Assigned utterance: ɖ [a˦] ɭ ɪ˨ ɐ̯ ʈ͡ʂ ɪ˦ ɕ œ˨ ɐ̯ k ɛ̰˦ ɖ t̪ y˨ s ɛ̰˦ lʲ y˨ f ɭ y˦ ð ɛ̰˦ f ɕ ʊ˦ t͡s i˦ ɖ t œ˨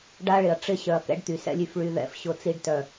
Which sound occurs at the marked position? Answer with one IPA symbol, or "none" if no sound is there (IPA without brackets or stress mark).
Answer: a˦